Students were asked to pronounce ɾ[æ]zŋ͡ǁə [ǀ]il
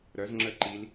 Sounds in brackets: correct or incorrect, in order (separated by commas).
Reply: incorrect, incorrect